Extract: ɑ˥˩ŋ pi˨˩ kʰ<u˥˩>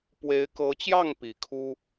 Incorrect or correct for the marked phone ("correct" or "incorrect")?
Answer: incorrect